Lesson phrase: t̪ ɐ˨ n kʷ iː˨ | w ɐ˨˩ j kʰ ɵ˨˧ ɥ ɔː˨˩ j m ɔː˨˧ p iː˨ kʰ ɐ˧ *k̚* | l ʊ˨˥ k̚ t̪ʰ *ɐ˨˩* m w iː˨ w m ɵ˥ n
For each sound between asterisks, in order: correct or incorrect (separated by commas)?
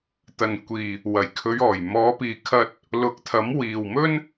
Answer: incorrect, incorrect